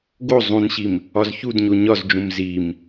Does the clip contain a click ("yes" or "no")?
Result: no